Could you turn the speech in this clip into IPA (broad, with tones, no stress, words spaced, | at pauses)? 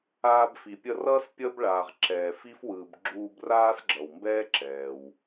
aː˧bfi˩ pʲʌ˧rʌː˥s pʲʌ˥b ɭaː˩ʁǁɛː˩fi˥fwɯː˩b ɡ͡ǁuː˧braː˥sɡ͡ǁʌ˩wmbɛː˥ ǁɛː˩w